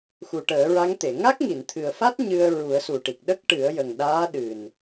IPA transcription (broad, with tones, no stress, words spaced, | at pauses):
xu˨˩ʈəː˨˩˦ɹa˧˥ŋt̪e˨˩˨ ŋa˦˥k̚ŋi˨˩˨n t̪ʰɨ˨˩ə̯fa˦˥t̚ ɲɨ˧ə̯ ɹu˨˩˦ə̯su˨˩ʈi˨˩k̚ ɗə˦˥k̚ʈɨ˨˩˦ə̯ jə˨˩ŋɗaː˧˥ ɗɨ˨˩n